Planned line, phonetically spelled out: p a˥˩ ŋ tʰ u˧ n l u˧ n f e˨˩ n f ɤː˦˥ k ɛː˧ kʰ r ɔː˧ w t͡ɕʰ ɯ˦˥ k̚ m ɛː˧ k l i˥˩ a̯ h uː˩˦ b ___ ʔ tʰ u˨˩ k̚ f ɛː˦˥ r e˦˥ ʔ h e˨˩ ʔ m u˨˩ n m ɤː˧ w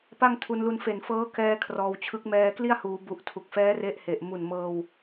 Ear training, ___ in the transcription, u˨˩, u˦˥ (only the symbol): u˨˩